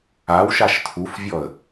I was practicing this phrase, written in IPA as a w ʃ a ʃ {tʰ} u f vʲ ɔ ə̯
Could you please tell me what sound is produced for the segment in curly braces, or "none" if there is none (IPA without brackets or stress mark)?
tʰ